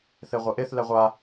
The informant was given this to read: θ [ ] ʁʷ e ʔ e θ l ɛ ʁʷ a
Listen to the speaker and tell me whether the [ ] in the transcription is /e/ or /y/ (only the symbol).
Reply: e